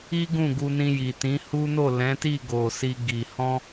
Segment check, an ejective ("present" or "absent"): absent